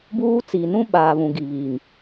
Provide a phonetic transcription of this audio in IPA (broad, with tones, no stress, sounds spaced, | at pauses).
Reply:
b uː˦ t͡s i˨ n ũ˦ ɓ aː˨ β ũ˨ ɡ i˨ β iː˨ ŋ